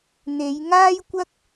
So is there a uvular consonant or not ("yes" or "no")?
no